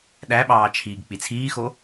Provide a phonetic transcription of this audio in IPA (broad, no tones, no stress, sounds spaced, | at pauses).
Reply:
ɗ æ ɓ ɑː t͡ʃʰ iː ɡ k͡p i t͡sʰ iː x o